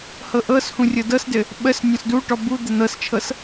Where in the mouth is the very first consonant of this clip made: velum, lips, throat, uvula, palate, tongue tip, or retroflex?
throat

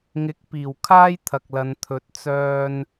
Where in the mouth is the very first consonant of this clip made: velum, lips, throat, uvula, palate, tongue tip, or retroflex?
velum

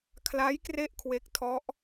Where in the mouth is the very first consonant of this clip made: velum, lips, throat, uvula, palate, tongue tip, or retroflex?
velum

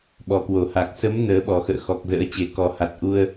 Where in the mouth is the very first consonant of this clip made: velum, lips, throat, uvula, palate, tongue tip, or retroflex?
lips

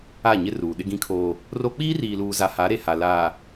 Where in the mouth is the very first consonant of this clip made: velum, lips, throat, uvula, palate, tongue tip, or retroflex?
palate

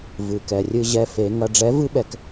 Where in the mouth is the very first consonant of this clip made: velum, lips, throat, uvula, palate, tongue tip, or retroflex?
lips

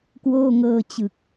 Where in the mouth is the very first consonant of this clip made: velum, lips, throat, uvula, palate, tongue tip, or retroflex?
velum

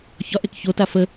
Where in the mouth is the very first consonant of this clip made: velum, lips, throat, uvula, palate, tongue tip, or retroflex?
palate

